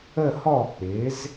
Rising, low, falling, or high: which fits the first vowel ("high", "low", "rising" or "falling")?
falling